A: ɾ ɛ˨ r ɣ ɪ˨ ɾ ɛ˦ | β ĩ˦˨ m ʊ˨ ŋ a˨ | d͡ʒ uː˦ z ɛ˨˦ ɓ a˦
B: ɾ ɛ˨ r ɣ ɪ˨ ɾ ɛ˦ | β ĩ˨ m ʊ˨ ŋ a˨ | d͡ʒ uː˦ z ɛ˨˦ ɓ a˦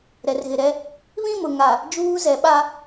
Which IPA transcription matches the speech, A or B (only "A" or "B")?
A